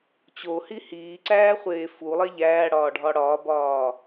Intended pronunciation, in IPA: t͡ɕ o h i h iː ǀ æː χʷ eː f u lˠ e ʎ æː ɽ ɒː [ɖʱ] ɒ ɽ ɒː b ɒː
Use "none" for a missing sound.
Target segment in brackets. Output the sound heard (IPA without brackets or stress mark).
ɖʱ